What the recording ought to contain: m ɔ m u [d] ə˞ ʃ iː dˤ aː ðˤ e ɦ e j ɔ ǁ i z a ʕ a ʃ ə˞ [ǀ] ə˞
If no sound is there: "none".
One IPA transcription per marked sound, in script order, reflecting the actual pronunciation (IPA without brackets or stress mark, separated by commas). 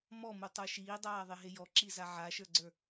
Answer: tˤ, ɡ͡ǀ